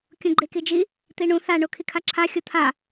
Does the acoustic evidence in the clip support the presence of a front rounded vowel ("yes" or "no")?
no